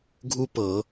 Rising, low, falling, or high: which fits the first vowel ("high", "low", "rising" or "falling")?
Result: high